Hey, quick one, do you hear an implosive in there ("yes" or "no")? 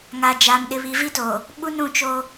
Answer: yes